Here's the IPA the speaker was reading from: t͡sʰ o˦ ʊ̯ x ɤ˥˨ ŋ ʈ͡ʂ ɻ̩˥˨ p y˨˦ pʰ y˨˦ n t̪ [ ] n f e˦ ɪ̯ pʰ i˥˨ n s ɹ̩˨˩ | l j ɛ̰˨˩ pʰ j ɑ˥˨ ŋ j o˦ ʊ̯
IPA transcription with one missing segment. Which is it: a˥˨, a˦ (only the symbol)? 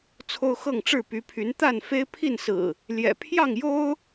a˥˨